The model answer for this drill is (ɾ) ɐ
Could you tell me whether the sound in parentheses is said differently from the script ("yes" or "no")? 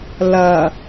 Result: yes